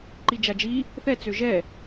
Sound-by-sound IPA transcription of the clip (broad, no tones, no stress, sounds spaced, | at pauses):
ǃ i d͡ʒ a d͡ʒ i | θ ɛ t͡s ø ʒ ɛ